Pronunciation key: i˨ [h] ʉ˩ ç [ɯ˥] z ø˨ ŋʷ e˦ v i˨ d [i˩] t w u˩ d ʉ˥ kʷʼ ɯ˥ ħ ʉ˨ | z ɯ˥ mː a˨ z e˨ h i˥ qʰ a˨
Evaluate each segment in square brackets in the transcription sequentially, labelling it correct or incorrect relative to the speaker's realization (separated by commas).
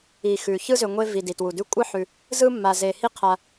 incorrect, correct, correct